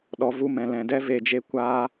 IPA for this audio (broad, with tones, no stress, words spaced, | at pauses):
ɗɔ˨˦vu˧mɛ̃˨ lɛ̃˨dɛ˦ ve˧d͡ʒe˦ kʷaː˦